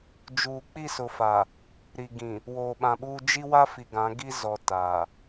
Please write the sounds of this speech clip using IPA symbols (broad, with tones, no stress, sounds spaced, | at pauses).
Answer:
d͡ʒ uː˨ k͡p i˦˨ s ʊ˨ f a˨ | ɾ i˨ ɡ ĩ˨ | w oː˨ ɓ ã˨ ɓ uː˦ d͡ʒ i˦ w a˦ f i˨ ɡ ã˨˦ ɡ i˦ z ɔ˨ t aː˨